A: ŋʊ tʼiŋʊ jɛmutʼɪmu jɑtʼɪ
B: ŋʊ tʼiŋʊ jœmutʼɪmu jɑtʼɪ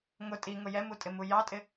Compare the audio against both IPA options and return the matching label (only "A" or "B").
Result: A